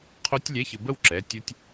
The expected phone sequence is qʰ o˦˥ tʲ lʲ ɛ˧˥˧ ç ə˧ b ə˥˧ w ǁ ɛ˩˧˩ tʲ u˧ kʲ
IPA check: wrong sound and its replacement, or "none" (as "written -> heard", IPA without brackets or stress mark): kʲ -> tʲ